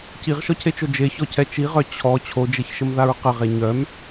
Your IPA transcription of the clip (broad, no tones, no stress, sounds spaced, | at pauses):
c i ʁ ʃ ɔ cʰ e t͡ʃ o d͡ʒ e ç ɔ cʰ ɛ t͡ʃ i ʁ œ t͡ɕʰ ɔ t͡ɕʰ o d͡ʒ e ç ʃ ə m ð a ɹ q ə ʁ e ɲ œ m